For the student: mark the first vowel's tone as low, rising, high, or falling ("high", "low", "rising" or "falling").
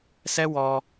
high